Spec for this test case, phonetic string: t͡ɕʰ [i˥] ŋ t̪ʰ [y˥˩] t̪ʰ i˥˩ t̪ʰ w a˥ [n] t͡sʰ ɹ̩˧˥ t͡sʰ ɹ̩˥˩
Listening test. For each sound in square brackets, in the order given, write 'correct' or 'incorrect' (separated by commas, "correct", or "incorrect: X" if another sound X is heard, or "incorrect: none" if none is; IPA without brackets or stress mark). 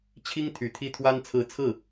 correct, incorrect: y˨˩, correct